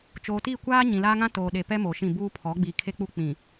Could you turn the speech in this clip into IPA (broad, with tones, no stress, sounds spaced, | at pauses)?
t͡ʃ oː˨ t iː˦˨ kʷ aː˦ ɲ ĩ˨ l aː˦ ŋ ã˦ t oː˨ ɗ e˨ p ɛ˦ m o˨ ʃ ĩ˦˨ b uː˦ pʰ ɔ˨˦ ɡ͡b iː˨ kʰ e˦ k͡p u˦ k͡p ĩ˨